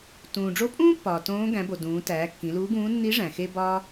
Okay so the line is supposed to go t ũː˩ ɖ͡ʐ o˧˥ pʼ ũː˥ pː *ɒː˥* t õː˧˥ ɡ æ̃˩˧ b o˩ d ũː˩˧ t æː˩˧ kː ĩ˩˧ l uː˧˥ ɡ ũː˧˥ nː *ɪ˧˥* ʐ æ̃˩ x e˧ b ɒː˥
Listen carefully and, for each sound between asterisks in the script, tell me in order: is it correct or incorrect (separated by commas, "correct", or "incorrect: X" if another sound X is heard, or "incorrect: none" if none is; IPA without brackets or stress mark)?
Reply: incorrect: ɒː˩, incorrect: i˧˥